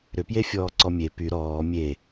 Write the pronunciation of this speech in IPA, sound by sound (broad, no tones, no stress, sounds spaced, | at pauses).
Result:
ɾ ʏ p j e fʲ ɔː ǀ ɔ mʲ e p y ɾ ɔː mʲ e